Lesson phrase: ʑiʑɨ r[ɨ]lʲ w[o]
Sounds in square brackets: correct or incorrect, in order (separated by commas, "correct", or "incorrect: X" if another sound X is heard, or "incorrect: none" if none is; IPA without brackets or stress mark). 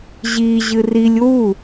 incorrect: i, incorrect: u